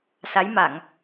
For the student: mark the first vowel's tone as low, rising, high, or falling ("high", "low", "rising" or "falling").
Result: rising